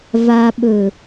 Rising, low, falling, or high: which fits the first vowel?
low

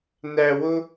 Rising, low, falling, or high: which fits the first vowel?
high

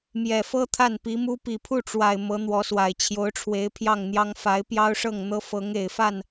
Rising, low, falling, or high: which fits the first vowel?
low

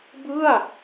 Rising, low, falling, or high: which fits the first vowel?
falling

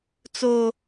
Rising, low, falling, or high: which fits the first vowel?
high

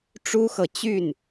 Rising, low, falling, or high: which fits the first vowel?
high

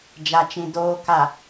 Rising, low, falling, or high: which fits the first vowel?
low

